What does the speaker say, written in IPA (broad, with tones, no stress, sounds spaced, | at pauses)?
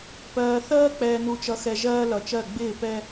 p ɜː˨ θ ɜː˦ k͡p ɛː˨ n u˨ t͡ʃ ʌ˨ x ɛ˨ ʒ ɜː˦ l ʌ˨ t͡ʃ ɜ˦˨ ɡ͡b ɪː˦˨ p ɛ˦